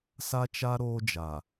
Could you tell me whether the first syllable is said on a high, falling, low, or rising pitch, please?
high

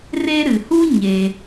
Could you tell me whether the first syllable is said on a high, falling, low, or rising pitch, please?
high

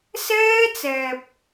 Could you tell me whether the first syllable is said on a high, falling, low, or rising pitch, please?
high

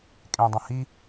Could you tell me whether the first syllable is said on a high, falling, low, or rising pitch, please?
low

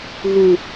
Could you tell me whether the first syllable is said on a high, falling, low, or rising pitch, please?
low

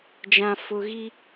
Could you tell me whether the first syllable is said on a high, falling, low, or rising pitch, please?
low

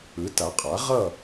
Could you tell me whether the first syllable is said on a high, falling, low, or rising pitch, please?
rising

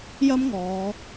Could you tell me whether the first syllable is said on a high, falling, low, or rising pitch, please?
high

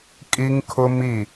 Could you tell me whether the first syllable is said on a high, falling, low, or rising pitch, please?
high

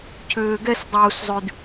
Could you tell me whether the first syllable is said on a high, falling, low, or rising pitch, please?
low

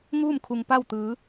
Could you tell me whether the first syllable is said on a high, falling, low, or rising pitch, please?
falling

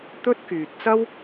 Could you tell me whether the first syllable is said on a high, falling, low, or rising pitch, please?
high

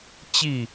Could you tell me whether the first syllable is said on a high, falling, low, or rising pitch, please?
falling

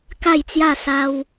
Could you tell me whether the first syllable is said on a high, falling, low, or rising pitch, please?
falling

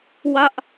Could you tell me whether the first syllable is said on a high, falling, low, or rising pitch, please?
high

